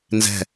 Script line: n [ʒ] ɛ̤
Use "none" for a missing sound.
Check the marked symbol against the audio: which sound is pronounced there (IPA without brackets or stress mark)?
z